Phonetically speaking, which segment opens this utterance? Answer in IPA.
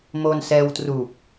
m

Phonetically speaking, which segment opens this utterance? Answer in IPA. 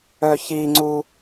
œ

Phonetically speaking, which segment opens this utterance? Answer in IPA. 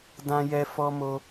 d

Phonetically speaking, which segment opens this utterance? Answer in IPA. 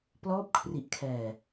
p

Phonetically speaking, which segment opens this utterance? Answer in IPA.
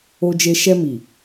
o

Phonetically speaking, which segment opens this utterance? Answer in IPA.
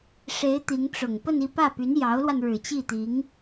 ʂ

